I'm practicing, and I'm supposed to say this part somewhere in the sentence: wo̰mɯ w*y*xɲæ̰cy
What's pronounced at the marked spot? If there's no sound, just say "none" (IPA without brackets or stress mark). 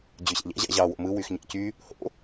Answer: y